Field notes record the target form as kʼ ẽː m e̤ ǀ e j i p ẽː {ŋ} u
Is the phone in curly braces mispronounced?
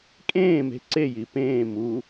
yes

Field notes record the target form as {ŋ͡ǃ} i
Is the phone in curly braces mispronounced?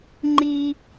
no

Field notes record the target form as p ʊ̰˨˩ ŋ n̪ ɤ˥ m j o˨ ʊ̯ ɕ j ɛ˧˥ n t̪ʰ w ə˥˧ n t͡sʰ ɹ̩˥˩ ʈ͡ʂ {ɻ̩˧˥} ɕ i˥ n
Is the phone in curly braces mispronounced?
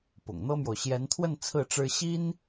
yes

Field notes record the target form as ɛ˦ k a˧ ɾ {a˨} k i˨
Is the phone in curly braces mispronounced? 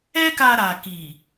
no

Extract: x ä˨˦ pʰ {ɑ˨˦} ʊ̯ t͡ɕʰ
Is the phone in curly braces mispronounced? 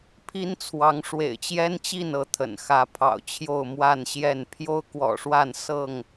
yes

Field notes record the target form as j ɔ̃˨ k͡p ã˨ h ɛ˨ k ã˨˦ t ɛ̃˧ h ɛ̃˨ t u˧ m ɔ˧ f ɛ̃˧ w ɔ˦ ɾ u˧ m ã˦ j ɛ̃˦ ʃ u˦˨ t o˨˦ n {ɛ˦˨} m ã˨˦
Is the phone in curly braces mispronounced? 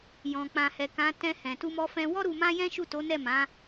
no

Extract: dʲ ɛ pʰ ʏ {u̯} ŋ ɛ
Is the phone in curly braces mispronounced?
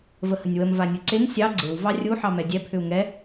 no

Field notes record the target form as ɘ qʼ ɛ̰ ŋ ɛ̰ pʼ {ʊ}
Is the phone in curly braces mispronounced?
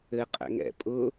no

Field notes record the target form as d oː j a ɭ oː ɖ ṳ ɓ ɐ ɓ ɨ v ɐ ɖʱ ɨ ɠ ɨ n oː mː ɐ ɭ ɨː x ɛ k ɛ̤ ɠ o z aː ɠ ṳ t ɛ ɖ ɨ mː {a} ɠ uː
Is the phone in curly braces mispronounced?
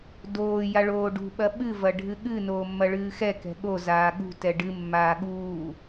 yes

